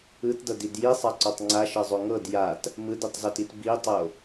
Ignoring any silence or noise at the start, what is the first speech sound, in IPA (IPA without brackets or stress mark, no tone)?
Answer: ɯ